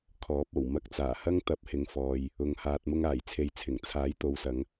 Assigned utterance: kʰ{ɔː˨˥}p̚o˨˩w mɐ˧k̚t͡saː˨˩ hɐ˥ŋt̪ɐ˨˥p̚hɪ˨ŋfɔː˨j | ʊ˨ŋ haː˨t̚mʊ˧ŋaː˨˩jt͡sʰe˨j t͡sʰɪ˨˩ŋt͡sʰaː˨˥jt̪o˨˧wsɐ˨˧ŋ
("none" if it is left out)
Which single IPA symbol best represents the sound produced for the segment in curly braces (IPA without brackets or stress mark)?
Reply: ɔː˨˥